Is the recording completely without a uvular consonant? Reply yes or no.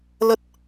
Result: yes